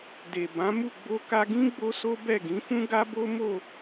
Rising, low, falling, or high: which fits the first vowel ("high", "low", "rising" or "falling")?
low